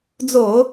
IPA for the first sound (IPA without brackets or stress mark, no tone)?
d͡z